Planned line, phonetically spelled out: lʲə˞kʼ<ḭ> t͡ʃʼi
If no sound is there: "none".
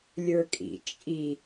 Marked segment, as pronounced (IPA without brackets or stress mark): ḭ